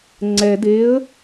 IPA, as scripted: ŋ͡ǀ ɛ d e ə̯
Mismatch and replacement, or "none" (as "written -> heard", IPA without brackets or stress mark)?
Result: none